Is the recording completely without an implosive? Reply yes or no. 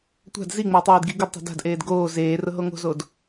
yes